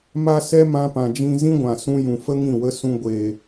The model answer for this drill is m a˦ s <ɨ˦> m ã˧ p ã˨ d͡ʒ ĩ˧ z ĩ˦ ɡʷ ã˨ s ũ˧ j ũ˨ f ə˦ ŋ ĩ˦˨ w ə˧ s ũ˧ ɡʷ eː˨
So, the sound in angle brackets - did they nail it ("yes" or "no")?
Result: no